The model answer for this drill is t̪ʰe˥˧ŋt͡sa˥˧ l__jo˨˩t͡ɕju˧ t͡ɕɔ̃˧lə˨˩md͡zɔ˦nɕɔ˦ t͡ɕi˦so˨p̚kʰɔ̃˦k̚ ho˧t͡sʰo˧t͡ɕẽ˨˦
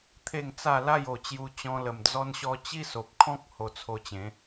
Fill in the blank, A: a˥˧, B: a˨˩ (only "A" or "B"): A